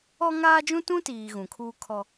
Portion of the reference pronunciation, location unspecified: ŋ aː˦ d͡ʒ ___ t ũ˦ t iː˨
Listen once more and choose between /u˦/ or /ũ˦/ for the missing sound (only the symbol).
ũ˦